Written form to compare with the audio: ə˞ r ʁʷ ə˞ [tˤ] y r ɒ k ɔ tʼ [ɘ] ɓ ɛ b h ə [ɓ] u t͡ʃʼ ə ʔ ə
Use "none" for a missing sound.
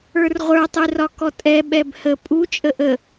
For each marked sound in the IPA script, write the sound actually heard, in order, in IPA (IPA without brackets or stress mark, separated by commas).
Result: tˤ, ɛ, pʼ